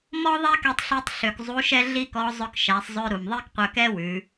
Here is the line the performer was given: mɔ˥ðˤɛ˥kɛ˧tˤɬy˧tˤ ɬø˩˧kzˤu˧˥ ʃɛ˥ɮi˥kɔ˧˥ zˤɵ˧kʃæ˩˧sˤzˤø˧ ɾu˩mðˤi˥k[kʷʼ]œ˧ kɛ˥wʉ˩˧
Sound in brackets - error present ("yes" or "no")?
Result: yes